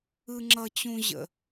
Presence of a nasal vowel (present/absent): present